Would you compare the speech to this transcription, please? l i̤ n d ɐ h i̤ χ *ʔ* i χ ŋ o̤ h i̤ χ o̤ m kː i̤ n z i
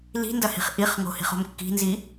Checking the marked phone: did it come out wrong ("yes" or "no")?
no